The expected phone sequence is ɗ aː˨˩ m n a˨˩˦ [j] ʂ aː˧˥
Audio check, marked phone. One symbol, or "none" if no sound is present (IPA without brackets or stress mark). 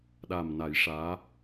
j